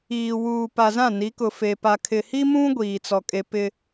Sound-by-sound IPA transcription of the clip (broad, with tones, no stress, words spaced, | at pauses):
iː˨ wuː˨pa˨zã˦˨ ni˨˦kʊ˨fe˨ pa˨kʰɪ˨hi˦mũ˦ ɡʷiː˨t͡sɔ˨kʼe˨ pɪ˨